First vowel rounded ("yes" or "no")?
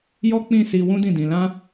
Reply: yes